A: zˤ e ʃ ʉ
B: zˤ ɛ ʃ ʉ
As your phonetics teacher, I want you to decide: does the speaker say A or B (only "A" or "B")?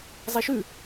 A